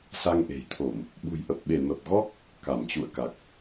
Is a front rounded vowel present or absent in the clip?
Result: absent